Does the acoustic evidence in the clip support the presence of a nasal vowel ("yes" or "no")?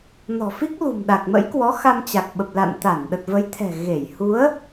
no